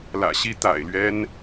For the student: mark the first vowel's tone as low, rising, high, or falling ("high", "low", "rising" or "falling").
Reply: low